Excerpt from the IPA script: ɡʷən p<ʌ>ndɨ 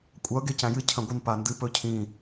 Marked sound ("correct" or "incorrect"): incorrect